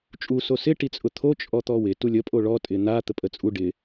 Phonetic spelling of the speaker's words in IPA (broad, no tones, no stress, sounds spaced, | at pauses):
t͡ʃʼ u s o s ɪ ʈ i t͡sʼ ʊ t̪ʰ o t͡ʃʼ ɔ t̪ ɔ w ɪ t u lʲ ə pʼ o ɭ ɔ tʼ ɪ n̪ a t̪ ə pʼ ə t͡sʼ u ɖ ɪ